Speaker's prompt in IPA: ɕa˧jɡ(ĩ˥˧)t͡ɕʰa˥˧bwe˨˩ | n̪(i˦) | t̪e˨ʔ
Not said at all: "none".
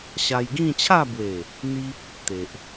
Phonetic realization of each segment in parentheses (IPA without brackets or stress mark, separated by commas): ĩ˥˧, i˦